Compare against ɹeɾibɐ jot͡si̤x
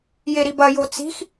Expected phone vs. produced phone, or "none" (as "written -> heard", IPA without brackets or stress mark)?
ɹ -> j